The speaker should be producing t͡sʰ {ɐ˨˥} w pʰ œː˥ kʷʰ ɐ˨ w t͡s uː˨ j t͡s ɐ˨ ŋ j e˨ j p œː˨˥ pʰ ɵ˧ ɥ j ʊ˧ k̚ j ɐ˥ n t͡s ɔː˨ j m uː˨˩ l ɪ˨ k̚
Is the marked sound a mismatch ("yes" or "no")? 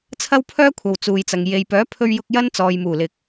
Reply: yes